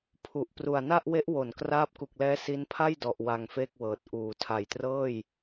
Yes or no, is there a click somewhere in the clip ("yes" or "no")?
no